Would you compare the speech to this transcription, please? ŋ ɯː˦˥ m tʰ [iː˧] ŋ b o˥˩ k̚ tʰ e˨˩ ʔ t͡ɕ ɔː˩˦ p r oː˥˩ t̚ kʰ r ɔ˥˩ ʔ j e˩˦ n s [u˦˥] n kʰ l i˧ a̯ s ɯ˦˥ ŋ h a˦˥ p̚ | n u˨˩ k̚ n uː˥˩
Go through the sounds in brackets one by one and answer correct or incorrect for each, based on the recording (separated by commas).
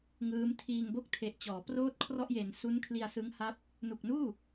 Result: correct, correct